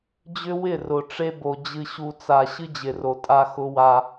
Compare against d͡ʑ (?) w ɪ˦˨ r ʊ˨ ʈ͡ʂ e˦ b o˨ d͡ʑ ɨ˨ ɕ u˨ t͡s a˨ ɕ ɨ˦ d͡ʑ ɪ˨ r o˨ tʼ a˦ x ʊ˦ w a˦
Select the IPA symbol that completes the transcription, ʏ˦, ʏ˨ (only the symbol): ʏ˦